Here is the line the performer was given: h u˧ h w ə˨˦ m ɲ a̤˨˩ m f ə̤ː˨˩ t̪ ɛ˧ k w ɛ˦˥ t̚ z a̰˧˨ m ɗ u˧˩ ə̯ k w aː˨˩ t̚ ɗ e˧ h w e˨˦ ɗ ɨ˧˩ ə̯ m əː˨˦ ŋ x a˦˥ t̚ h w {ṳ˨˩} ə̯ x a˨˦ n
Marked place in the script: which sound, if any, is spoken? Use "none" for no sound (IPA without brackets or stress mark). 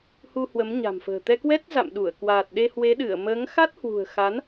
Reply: ṳ˨˩